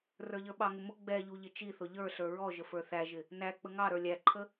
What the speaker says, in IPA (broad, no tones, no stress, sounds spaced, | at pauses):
r ə˞ ʎ ə˞ ɓ ɑ ŋ ʊ m ʊ ɡ͡b ɛ ʎ u ʎ ɪ t͡ʃ i θ ʊ ʎ ə˞ ɬ ə˞ ɹ ɔ ʒ ə f ə˞ θ æ ʒ ɪ | n æ k͡p ə ŋ ɑ ɾ ə˞ lʲ æ ǃʰ ə